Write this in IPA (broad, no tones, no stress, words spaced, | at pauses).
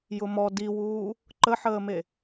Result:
jʊmɔ diwuː | ǃəħəːme